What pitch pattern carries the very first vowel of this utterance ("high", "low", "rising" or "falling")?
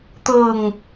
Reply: low